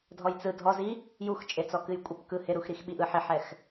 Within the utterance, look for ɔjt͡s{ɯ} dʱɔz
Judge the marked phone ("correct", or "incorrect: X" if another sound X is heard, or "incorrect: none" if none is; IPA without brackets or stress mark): correct